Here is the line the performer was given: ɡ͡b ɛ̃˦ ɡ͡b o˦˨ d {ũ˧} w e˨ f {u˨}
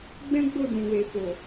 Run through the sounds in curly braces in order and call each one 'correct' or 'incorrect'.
incorrect, incorrect

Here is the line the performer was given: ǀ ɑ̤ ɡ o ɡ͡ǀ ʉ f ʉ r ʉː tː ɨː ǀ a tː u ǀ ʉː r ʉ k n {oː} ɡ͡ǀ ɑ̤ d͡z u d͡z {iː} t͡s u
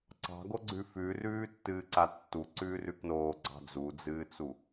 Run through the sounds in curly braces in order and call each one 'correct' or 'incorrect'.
correct, incorrect

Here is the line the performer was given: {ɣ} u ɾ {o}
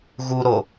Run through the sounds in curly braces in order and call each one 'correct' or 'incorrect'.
correct, correct

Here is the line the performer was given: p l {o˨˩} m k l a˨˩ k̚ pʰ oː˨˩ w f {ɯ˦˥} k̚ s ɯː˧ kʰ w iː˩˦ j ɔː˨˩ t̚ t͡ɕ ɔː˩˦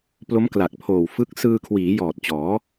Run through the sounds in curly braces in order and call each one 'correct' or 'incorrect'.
incorrect, correct

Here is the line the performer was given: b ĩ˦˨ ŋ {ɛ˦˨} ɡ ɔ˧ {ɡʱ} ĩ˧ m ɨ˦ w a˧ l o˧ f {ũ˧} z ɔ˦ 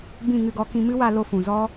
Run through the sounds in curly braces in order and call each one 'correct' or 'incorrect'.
incorrect, incorrect, incorrect

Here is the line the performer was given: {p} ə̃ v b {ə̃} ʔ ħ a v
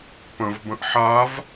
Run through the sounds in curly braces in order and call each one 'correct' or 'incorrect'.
correct, correct

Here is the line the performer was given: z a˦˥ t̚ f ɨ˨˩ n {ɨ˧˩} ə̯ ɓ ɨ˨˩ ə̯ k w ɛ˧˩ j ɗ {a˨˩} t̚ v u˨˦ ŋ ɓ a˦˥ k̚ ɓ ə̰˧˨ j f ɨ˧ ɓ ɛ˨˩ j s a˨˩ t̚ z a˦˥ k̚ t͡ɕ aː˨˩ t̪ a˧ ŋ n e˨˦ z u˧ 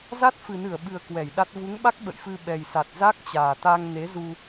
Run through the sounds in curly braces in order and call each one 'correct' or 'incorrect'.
correct, incorrect

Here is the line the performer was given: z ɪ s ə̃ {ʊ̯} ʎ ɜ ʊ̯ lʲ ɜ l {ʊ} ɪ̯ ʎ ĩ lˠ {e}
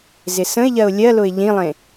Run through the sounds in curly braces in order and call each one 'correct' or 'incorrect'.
incorrect, correct, incorrect

